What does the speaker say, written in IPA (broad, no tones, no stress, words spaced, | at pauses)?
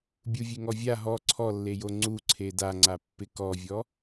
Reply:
bʲuvʲeŋɔvʲa ɦɔ ǀʰɔlːejo ŋ͡ǀu ǀʰedaŋ͡ǀapːɪ kɔvʲɔ